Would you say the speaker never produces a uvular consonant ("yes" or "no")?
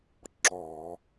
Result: yes